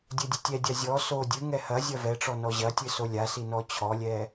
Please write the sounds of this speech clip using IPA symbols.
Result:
dʲ ɘ dʲ ɘ tʲ ɛ dʲ a zʲ ɔ s o dʲ ɨ ŋ ɛ h ɐ zʲ ɐ v ɛ ʈ͡ʂ ɔ n ɔ ʑ ɐ tʲ ɨ s o lʲ a s i n ɔ t͡ɕʰ ɔ lʲ ɛ

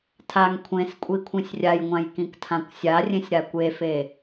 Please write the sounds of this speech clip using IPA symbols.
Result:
tʰ a ŋ kʷʰ ẽ s kʷʼ i kʷʰ ĩ sʲ rʲ a j ŋʷ ã j k ĩ k tʰ ã kʷ sʲ a rʲ ẽ sʲ ɾ a kʷ e f e

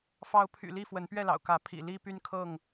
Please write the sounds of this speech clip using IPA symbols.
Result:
f ɑ˨˦ ʊ̯ pʰ y̰˨˩ l i˥˨ f w ə˨˦ n p ɥ ɛ˥˨ l ɑ̰˨˩ ʊ̯ k ä˨˦ pʰ ḭ˨˩ l i˦ p y˦ n kʰ ɤ˥˨ ŋ

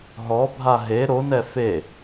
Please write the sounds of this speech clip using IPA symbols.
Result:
ɦ ɔ bʱ a ɦ e ɾ o n ɛ f e

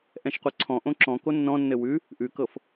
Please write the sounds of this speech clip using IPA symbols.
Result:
ʔ ɛ̃ ʃ qʷ ɜ ǀʰ ɔ̃ ʔ õ ǁ ɔ̃ k o nː ɔ̃ nː ɘ w ʉ | ʔ ʉ k ɤ f

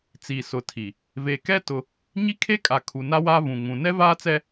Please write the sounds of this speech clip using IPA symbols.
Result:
t͡s iː˨ s ʊ˨ tʰ i˨ | v e˨ k ɛ˦ t ʊ˦ | ɲ i˦ kʰ e˦ kʼ a˨ kʰ u˨ n a˦ w aː˦ v ũ˨ ŋ ũ˨ n ɛ˦ v aː˦ t͡s ɛ˦

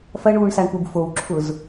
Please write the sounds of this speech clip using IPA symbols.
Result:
f ɐ ɳ uː ɳ s a ɳ p u b f o w ǁʰ ʊ z

